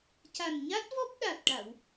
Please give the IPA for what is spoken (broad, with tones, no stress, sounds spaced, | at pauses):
c a˨˩ n ɲ a˦˥ t̚ v ɔ˦˥ p̚ ɗ a˨˩ t̚ ʈ a˨˩˨ w